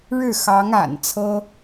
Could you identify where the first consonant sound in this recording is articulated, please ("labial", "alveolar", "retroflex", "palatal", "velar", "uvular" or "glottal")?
retroflex